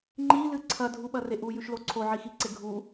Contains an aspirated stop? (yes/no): yes